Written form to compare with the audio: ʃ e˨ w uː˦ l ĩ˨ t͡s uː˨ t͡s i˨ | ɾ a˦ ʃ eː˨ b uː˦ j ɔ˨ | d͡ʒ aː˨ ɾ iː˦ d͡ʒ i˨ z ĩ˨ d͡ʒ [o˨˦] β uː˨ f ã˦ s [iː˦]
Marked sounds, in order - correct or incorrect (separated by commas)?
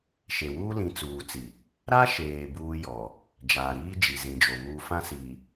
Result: incorrect, incorrect